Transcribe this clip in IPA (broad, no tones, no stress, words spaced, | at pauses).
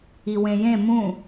iwẽjẽ mũ